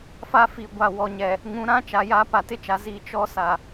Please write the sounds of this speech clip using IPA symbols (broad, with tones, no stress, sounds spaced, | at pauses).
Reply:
f a˦ f i˨ ɡʷ a˨ w ɔ˨ ɲ ɛ˨ | ŋ ũ˨˦ ɾ ã˦ t͡ʃ a˨ j aː˦ p a˨ t ɪ˦ t͡ʃ a˨ z i˦˨ t͡ʃ ɔ˦ s a˨